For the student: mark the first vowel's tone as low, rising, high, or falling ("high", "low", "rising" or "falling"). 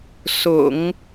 low